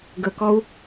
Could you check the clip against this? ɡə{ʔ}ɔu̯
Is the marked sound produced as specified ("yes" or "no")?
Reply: no